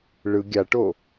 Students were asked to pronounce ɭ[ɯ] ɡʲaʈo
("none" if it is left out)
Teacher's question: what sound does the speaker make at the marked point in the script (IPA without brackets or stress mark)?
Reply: ɯ